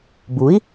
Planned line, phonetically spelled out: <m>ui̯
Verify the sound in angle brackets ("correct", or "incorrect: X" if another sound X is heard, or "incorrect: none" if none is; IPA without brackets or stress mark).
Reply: incorrect: b